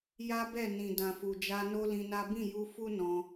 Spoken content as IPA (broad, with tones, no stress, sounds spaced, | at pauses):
j a˦ b ɛ˦˨ n ĩ˨ d ã˨ f u˨ d͡ʒ a˧ n o˦ l ĩ˧ n a˦ b ĩ˦˨ j u˧ f u˦ n ɔ̃˧